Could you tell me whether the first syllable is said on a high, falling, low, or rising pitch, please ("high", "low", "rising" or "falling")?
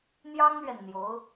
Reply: high